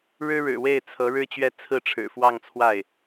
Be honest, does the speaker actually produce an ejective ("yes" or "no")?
no